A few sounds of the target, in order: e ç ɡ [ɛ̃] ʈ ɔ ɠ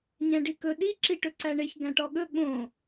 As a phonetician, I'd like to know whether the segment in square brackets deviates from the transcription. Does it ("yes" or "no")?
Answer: yes